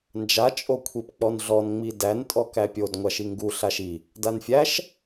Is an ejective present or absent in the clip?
present